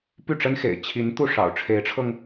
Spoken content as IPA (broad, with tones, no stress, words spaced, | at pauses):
py˥˩ʈ͡ʂə˥nxḛ˨˩ɪ̯ t͡ɕʰi˧˥n t̪u˥˩ʂɑ̰˨˩ʊ̯ ʈ͡ʂʰe˧˥ɪ̯ʈ͡ʂʰɤ˧ŋ